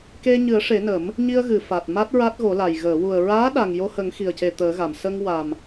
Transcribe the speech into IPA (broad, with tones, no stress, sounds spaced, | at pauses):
k e˧ ɲ ɨ˨˩˦ ə̯ ʂ e˨˩˦ n ə˨˩˦ m | ɲ i˧ ə̯ ɣ ɨ˨˩˨ f a˨˩ t̚ m a˦˥ t̚ ɹ a˦˥ t̚ ɣ o˨˩˦ l a˨˩ j ɣ əː˨˩˨ w u˨˩ ə̯ ɹ aː˧˥ ɗ a˨˩ ŋ j o˧ h ə˨˩˦ ŋ x i˨˩ ə̯ c e˨˩ t̪ əː˨˩˦ ɣ a˨˩˨ m s ə˧ ŋ w a˨˩ m